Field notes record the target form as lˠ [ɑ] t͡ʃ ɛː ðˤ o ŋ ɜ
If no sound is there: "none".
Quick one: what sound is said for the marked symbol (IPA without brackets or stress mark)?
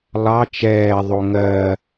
ɑ